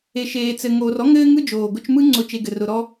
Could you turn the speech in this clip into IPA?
e˨ ʃ eː˨ t͡s ɘ˨ ŋ oː˨ r ɔ˥ ŋ ɘː˦ ŋ ɯ˥ d͡ʒ oː˩ ɡ ʊ˦ t͡ʃ m ɯ˦ ŋ͡ǀ ʊ˥ t͡ʃ e˦ ɡ ɘ˨ r ʊ˨ ɾ ɔ˦

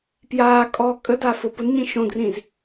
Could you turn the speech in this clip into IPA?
p j aː kʼ ɔː kʼ ə d a f ʊ p ʊ n ɲ ĩ ʃ õ d r ĩ z

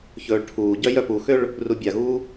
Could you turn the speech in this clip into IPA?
ç ɵː ɭ ʈʰ uː ɟ œ j œ p u x ø ɭ | r u bʲ a ɣ uː

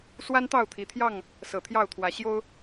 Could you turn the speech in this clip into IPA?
s w a˦ n t̪ ɑ˥˨ ʊ̯ t̪ʰ i˨˩ t̪ʰ j ɑ˥˨ ŋ | s ɤ˨˩ t̪ʰ j ɑ˥˨ ʊ̯ t̪ʰ w ä˨˦ ɕ j o˦ ʊ̯

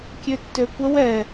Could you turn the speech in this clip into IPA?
kʲ ø tː ø kʷ ə w ɛ

